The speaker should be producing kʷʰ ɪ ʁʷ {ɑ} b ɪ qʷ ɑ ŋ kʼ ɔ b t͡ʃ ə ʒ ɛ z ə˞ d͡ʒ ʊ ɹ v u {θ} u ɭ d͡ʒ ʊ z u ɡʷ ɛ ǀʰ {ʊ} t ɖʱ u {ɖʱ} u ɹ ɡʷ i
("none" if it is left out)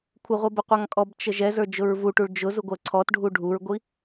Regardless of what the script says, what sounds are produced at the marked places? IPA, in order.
ʌ, ʈ, ɔ, ɖʱ

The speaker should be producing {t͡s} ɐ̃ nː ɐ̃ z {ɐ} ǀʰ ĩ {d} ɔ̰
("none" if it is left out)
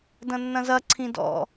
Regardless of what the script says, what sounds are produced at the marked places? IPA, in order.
d, ɐ, d

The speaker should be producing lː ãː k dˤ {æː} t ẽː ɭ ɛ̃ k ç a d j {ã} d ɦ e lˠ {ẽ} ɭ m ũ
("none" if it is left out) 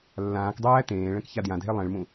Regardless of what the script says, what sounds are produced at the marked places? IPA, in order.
æː, ã, ẽ

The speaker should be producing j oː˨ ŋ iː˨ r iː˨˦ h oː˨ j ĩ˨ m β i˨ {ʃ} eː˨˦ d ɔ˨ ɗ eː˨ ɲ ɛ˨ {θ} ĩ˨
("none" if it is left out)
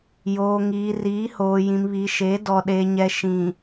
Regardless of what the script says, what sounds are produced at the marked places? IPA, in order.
ʃ, ʃ

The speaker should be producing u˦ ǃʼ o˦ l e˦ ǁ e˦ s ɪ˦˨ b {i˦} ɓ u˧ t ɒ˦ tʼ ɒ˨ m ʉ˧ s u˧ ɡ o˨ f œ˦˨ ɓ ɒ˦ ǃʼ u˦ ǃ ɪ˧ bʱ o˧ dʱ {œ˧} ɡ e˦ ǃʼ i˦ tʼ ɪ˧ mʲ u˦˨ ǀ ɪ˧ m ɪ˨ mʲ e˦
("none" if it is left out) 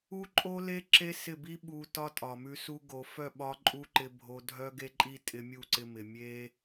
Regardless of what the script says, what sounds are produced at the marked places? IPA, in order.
i˦, œ˦

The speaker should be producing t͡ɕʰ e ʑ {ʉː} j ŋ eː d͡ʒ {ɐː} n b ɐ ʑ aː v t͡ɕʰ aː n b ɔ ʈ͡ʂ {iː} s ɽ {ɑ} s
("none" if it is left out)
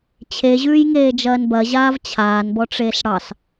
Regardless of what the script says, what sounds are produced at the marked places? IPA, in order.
ʉː, ɐː, eː, ɑ

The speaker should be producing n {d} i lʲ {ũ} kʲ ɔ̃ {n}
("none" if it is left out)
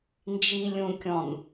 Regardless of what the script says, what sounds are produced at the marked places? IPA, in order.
d͡ʒ, ũ, n

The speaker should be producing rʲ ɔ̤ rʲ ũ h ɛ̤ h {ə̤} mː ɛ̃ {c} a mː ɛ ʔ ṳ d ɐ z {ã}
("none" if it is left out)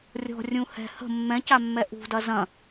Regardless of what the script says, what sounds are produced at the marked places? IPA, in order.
ə̤, c, ɐ̃

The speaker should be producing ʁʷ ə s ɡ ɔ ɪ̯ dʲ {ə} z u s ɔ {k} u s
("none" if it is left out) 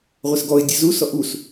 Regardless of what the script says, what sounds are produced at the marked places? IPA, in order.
ə, ʔ

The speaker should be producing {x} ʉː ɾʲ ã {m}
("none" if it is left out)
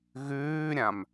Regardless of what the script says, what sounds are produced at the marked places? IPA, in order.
ɣ, m

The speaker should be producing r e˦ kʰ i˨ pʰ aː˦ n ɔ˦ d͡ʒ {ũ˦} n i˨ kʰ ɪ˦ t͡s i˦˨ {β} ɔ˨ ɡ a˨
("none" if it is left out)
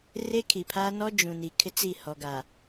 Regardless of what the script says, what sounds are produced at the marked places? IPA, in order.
ũ˨, h

